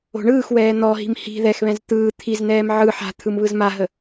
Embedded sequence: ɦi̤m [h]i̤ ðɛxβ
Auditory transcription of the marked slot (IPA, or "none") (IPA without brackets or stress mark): h